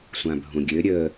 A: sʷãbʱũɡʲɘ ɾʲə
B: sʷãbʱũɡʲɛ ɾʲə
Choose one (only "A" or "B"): A